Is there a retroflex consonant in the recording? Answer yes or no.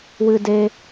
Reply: no